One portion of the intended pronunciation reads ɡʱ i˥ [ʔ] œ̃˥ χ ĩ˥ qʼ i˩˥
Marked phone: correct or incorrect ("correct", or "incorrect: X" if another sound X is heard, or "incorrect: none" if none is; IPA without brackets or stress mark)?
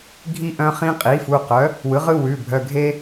correct